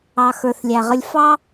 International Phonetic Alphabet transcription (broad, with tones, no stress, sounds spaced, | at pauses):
ɑ˨ x ə˞˨ θ lʲ æ˨ ʁ ə˧ lʲ f ɑ˦